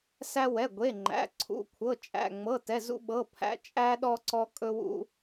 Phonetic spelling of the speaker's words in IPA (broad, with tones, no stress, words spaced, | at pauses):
sæ˥wɛ˧˥˧ɡʷe˧˥˧ŋ͡ǃæ̰˧˥˧ ǀʰṵ˧˥˧kʷʰɤ˧˥˧t͡ʃʼæ̰˧˥˧ŋ͡mɤ˧˥˧ tɛ˧˥˧zṵ˥ɓɤ˧˥˧ pʰæ̰˥ t͡ʃʼæ˥ ɗɔ˥ǀɔ˥kʼɵ˥wṵ˥